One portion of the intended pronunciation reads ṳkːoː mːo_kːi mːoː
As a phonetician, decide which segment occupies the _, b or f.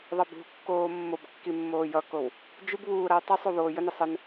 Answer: b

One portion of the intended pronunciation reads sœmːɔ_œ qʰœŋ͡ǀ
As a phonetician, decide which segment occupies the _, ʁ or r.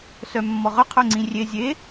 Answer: ʁ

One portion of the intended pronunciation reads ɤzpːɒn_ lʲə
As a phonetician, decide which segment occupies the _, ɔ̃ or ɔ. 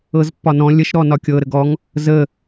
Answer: ɔ̃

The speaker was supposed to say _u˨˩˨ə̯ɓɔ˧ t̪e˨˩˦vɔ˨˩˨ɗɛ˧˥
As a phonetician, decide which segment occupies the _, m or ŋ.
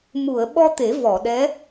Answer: m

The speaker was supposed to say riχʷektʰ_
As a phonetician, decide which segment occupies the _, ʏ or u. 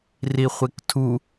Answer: u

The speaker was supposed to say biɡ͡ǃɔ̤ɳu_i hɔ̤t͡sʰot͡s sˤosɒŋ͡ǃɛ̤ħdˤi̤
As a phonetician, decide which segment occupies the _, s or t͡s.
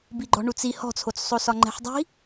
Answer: t͡s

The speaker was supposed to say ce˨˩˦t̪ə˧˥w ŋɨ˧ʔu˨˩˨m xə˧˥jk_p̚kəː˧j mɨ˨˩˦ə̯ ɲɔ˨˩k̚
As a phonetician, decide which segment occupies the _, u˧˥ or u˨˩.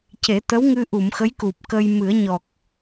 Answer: u˨˩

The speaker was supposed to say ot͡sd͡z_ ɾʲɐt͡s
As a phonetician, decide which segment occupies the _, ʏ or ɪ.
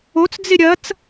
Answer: ɪ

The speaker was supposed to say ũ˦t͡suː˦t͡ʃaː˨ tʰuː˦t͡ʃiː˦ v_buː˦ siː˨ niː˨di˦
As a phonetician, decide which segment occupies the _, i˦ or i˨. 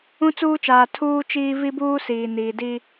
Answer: i˦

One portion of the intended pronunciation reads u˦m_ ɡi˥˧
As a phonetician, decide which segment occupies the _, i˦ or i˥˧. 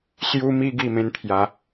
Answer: i˦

